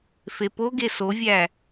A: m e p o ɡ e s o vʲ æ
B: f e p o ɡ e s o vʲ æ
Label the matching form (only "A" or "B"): B